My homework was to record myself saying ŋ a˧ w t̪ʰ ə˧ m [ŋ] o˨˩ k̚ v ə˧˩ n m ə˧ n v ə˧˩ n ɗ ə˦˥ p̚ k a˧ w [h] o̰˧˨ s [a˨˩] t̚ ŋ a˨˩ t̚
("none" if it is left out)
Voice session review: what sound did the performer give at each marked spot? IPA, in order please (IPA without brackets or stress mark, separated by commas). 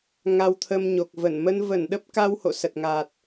ɲ, h, ə˨˩